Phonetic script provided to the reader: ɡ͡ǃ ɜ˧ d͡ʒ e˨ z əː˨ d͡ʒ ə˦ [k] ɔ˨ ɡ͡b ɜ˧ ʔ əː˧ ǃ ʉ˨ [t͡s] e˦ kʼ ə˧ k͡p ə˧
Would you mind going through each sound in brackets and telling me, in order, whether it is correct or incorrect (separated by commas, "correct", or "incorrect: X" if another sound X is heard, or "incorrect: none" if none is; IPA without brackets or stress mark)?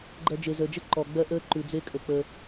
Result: incorrect: ǃ, incorrect: d͡z